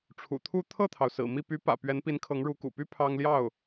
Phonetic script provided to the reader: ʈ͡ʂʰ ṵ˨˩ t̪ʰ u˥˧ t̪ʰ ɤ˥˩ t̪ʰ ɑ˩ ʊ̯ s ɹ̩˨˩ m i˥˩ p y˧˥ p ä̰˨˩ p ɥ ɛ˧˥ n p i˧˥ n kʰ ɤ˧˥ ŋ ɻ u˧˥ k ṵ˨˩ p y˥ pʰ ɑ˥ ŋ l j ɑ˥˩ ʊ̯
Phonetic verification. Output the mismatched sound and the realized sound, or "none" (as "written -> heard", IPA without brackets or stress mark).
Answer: none